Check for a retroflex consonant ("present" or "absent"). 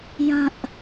absent